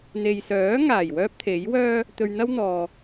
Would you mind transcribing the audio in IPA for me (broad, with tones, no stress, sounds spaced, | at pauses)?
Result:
n̪ e˨ j s œː˨˥ ŋ aː˨˩ j w œː˥ p̚ t̪ʰ e˨˥ j w œː˥ | t̪ ɵ˧ ɥ n̪ ɐ˥ w n̪ ɔː˨